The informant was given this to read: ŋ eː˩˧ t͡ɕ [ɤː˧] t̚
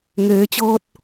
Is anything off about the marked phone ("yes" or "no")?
no